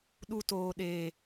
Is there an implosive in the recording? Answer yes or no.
yes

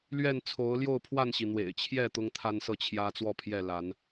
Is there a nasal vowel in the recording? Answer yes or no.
no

